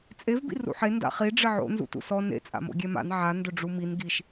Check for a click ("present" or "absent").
absent